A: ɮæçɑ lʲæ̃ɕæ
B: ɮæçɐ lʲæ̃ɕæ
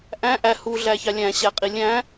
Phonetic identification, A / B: A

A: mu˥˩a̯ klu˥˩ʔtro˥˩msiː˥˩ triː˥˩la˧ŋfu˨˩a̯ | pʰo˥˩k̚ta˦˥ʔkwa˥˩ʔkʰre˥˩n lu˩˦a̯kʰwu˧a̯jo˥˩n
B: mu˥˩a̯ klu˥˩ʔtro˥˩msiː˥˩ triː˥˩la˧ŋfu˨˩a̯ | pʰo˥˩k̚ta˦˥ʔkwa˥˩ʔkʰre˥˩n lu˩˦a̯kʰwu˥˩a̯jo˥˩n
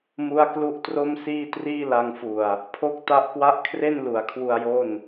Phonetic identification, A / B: A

